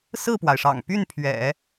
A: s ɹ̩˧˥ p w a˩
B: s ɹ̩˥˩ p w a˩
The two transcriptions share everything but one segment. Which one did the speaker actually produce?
B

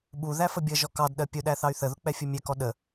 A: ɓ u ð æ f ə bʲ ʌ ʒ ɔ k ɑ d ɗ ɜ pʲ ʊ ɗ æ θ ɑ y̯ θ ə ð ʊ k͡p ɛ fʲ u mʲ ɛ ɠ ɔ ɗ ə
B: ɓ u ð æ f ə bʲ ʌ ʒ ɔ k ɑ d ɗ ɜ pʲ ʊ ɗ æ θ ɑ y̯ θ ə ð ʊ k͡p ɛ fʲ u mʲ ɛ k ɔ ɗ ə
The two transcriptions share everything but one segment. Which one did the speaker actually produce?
B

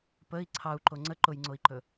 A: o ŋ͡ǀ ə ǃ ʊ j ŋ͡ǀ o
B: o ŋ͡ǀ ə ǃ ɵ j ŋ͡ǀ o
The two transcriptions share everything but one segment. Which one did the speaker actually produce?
A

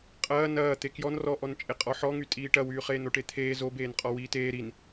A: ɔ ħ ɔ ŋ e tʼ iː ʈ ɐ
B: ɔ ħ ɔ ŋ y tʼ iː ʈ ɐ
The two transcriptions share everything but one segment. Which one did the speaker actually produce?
B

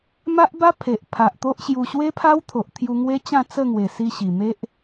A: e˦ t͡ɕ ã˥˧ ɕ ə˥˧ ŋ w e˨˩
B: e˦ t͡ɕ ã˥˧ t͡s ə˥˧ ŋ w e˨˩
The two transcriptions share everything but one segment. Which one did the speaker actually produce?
B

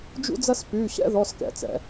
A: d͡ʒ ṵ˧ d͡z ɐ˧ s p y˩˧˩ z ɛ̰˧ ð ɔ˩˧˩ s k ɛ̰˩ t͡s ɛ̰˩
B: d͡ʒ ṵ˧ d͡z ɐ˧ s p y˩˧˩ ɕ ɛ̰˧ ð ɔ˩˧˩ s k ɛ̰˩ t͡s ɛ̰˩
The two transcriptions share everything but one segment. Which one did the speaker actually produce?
B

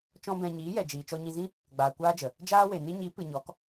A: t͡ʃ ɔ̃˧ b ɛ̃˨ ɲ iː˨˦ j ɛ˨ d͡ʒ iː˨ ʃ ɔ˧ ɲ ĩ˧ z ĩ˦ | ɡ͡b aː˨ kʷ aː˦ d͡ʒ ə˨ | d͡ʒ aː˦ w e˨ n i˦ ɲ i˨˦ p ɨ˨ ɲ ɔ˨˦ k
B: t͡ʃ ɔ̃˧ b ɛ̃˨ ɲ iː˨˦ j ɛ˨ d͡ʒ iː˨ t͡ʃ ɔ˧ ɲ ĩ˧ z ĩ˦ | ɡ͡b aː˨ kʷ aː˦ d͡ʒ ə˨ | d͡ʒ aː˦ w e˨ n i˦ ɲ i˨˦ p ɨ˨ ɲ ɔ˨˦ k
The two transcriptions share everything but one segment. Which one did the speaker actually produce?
B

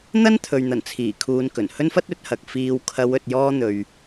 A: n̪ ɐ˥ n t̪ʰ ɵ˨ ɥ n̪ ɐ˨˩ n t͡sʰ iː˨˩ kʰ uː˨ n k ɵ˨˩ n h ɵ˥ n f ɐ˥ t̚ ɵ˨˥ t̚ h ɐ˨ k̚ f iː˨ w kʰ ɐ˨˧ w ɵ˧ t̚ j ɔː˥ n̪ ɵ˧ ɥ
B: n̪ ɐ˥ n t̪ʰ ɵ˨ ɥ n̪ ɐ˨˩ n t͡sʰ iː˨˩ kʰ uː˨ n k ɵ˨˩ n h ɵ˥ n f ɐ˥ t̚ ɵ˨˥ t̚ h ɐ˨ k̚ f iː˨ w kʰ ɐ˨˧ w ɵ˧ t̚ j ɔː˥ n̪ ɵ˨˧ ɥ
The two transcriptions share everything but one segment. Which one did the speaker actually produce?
A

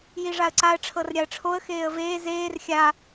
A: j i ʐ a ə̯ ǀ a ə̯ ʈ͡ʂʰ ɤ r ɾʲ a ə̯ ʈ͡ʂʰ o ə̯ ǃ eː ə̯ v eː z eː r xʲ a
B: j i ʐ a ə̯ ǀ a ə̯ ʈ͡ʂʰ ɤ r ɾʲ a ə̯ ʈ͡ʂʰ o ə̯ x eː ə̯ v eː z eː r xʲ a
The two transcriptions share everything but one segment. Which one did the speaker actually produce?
B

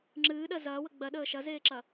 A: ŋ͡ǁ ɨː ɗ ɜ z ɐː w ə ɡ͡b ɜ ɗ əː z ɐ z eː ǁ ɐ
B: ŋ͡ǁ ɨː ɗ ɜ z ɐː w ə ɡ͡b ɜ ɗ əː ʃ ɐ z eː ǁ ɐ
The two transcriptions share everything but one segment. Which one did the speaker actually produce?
B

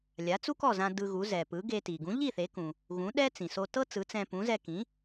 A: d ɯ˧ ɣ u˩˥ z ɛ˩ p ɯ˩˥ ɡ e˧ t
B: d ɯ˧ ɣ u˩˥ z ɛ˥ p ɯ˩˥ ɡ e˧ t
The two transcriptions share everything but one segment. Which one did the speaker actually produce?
A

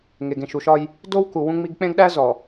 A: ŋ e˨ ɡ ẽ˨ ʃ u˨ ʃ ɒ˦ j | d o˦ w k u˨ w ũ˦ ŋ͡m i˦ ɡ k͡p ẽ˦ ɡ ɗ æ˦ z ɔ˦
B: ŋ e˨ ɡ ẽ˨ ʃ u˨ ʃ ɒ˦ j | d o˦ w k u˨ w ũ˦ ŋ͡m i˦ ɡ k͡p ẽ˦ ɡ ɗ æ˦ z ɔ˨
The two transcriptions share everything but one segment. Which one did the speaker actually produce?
B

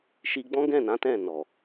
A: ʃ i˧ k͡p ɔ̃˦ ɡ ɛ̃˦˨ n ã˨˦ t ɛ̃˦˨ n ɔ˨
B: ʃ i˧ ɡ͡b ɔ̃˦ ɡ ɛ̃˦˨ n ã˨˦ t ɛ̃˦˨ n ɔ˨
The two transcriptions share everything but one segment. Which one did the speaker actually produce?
B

